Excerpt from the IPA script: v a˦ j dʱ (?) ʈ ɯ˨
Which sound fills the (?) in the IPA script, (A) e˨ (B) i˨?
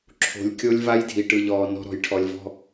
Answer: B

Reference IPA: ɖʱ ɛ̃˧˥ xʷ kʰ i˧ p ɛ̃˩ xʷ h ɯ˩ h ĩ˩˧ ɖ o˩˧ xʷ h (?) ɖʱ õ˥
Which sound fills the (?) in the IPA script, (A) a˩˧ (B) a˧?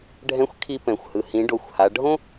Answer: A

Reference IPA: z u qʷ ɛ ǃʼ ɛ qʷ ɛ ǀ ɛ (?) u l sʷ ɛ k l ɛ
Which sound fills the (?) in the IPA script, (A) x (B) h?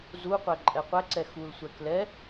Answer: A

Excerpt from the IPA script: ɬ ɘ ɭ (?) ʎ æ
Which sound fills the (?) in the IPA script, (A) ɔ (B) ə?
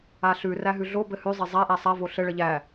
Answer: B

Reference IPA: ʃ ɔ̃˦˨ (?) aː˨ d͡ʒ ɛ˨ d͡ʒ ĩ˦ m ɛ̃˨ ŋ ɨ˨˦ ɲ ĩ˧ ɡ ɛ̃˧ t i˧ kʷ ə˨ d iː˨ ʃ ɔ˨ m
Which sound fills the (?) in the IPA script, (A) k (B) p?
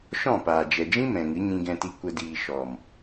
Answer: B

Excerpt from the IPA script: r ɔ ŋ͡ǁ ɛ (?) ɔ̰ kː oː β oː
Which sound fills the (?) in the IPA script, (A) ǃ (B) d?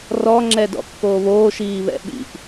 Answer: B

